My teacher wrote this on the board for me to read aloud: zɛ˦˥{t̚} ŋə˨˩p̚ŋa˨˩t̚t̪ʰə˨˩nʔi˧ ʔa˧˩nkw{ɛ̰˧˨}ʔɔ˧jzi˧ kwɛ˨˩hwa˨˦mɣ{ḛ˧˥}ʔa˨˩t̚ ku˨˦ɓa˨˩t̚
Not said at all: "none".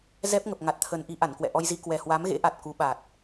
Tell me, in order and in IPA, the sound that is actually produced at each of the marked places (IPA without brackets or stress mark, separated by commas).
p̚, ɛ̰˧˨, ḛ˧˥